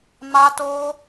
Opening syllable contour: high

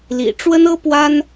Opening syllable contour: low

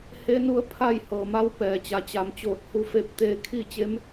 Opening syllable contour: rising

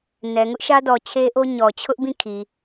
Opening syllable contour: low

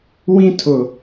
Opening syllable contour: high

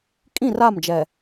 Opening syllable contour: falling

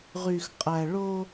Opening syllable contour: low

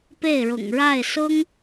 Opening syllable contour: falling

